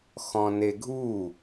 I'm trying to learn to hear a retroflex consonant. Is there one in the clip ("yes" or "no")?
no